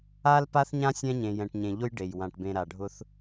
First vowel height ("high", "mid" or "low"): low